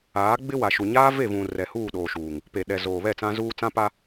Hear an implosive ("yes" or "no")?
yes